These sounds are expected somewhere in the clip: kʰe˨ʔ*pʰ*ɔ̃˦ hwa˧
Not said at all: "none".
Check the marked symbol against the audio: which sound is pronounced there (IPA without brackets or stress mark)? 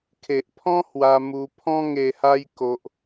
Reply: pʰ